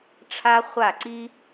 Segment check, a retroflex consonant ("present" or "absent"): present